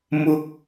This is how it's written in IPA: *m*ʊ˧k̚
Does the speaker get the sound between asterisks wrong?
no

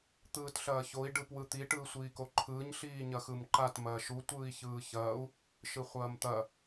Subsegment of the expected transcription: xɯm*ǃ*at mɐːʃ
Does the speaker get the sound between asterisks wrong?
no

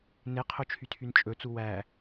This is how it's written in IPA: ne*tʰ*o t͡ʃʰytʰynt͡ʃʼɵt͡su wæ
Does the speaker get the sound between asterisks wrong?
yes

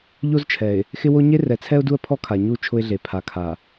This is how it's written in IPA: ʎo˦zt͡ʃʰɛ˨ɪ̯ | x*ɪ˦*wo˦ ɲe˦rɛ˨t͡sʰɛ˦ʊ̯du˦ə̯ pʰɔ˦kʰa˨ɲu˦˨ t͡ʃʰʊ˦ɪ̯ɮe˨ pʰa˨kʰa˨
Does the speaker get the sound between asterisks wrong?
no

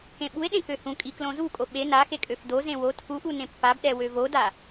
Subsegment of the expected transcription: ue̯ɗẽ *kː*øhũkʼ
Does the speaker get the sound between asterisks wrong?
yes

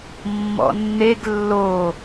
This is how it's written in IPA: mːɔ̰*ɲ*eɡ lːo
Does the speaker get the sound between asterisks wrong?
yes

